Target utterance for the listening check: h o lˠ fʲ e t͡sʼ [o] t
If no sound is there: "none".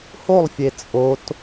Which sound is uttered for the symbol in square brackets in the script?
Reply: o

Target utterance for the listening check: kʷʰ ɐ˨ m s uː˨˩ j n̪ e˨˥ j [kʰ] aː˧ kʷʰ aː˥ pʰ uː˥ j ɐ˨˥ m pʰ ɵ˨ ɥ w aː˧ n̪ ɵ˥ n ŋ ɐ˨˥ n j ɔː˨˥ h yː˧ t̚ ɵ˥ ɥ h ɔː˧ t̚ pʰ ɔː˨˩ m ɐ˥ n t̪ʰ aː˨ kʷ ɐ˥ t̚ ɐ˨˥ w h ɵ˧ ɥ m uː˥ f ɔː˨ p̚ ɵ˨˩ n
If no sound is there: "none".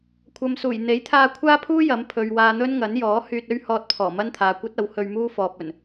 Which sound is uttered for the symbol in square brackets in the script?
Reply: t̪ʰ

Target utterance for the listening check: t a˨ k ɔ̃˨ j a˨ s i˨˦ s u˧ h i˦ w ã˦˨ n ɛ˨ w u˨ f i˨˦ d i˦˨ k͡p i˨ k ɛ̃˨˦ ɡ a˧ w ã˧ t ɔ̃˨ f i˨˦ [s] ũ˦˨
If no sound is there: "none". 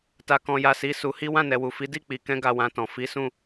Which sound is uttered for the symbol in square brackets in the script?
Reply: s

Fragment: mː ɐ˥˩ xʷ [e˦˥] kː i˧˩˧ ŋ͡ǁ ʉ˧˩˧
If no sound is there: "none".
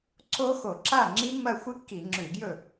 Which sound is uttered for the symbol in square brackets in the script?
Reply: ɨ˦˥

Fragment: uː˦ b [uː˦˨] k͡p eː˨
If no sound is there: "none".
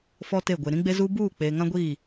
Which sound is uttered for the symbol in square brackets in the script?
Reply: uː˦˨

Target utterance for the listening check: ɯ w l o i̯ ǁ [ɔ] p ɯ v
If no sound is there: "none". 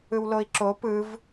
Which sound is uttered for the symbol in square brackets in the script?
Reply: o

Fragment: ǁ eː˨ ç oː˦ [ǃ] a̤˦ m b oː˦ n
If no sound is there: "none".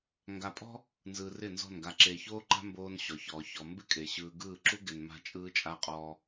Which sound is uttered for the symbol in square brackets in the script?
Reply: ǃ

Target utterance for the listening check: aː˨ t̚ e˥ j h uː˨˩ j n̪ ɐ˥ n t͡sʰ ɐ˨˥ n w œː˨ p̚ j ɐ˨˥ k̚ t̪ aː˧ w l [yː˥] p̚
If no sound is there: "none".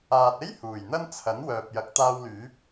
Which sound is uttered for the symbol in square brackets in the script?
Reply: yː˨˥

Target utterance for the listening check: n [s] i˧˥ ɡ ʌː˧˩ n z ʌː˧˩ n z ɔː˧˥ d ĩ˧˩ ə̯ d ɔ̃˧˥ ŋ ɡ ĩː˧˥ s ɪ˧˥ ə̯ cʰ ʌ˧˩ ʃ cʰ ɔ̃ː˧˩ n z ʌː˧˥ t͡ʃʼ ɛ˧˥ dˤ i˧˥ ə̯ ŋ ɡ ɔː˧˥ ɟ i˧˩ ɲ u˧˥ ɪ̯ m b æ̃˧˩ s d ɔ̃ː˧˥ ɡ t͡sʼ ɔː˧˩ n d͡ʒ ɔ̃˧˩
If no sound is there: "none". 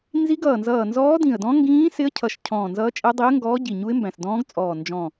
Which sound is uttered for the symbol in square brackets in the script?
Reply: z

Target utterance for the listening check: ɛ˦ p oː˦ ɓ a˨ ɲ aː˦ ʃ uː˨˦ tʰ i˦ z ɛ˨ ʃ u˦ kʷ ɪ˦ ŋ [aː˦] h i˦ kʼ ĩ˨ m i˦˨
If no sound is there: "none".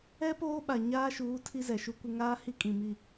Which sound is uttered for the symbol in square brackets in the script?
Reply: aː˦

